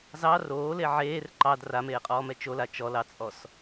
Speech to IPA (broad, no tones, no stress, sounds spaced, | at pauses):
z ɑ r oː l e ʕ eː r ǃ ɑ d r a m eː qʼ ɔː m ɛ t͡ʃ o l a t͡ʃ ɔ l ɑ t͡sʼ ɔ s